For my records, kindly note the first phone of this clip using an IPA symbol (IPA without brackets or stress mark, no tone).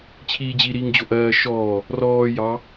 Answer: t͡ɕʰ